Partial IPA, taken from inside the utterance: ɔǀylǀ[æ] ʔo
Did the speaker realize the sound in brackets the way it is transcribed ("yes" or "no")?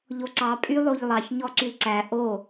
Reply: yes